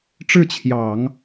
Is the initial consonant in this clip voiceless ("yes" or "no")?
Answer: yes